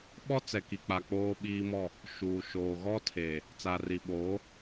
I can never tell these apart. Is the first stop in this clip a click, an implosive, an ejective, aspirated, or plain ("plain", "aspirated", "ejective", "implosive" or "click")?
implosive